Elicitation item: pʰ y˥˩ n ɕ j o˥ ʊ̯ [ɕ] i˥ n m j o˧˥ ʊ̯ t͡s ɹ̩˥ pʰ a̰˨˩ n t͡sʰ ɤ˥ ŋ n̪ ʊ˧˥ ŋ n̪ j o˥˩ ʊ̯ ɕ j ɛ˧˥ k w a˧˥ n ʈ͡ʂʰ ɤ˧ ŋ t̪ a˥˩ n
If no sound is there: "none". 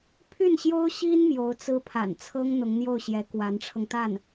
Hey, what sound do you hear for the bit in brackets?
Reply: ɕ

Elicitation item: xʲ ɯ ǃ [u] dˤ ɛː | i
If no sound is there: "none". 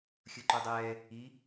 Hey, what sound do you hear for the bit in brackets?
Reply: u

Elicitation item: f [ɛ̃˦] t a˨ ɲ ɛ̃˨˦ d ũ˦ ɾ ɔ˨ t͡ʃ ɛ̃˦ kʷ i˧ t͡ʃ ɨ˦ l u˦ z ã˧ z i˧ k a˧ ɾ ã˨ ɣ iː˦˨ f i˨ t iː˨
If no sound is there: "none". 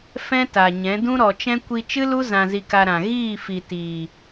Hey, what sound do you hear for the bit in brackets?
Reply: ɛ̃˦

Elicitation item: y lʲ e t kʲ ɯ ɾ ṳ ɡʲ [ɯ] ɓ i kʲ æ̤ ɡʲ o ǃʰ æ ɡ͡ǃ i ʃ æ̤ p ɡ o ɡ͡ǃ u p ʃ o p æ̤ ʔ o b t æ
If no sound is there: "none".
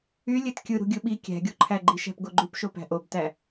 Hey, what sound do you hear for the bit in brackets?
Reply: ɯ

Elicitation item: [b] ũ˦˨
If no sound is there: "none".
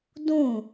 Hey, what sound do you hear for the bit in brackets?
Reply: d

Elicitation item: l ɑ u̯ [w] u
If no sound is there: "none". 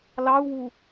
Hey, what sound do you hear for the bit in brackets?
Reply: w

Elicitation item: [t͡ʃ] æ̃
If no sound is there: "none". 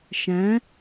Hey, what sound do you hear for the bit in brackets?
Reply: ʃ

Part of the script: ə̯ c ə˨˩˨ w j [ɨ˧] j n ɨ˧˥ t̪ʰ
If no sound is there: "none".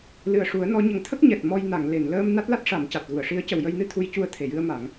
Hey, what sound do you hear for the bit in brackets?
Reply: ə˧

